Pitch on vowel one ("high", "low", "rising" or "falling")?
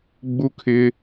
high